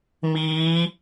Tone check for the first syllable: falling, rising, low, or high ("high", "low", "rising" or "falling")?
rising